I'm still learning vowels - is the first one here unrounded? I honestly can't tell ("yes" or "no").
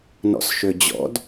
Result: no